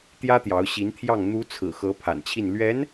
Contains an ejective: no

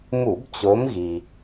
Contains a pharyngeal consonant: no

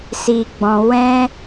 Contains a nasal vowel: yes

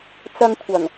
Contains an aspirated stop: yes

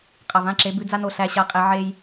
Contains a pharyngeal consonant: yes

